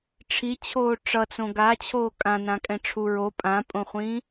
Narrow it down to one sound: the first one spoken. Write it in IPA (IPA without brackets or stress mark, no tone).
ʈ͡ʂʰ